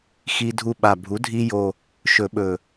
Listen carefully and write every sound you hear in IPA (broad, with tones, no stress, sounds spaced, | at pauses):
x i˧ dʱ u˧ ɓ a˨˩ bʱ u˩˥ dʱ i˧ j o˨˩ | ʃ ɵ˨˩˦ ɓ ɵ˨˩